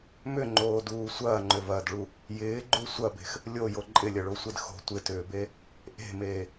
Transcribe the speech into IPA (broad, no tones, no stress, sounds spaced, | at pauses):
m ʏ ŋ͡ǃ oː d uː sʷ ɐː ŋ͡ǃ ʏ v ɐː d ɭ u | j ɪː ɡ͡ǃ u sʷ ɐ b e̤ x | lʲ o j o ǃʼ ɪ lʲ ɐ ɭ o sʷ e d x o̤ tʷ ɪ t ʏː b e | ʔ e̤ m eː